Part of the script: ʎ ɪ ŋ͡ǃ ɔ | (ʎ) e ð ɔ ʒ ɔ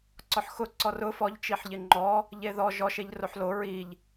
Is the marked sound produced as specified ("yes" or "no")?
yes